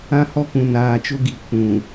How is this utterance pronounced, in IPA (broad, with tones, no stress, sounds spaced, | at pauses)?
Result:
ã˦ h ɔ˦ k ũ˨ n aː˨ t͡ʃ ʊ˦ ɡ i˨ kʷ ũ˨